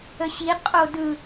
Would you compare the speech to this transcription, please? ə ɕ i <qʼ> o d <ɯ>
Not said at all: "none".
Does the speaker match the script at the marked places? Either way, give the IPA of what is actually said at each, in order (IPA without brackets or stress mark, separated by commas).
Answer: qʼ, ɯ